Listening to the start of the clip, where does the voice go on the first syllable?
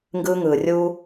high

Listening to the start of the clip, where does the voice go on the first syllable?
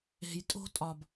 low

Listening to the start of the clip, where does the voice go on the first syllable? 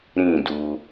falling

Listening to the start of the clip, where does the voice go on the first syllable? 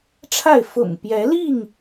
falling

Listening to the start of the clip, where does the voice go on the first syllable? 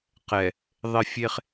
low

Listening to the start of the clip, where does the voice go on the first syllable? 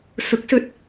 rising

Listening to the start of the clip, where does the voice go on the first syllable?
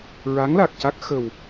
rising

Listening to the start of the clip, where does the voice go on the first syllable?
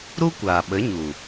high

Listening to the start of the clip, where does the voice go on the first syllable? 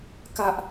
high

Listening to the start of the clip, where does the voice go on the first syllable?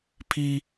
high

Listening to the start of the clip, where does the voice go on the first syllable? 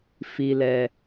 low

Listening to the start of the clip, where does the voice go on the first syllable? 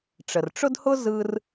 low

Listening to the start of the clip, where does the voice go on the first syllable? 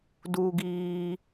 high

